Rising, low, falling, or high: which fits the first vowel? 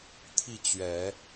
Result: falling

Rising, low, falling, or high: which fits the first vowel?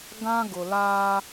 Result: high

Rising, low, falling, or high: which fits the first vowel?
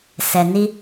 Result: low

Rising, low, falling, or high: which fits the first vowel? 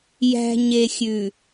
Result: low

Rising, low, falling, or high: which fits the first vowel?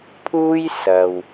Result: high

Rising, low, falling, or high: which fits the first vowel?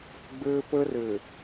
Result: high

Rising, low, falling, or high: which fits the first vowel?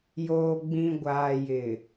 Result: low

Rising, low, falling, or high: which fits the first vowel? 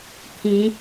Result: rising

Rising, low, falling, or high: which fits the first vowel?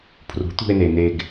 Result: rising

